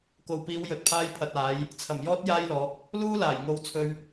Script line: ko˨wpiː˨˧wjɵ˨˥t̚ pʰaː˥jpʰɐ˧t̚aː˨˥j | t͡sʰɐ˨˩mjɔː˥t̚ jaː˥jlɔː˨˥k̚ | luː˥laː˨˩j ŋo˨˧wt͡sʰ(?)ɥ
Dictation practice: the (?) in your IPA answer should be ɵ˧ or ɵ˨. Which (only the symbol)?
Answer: ɵ˧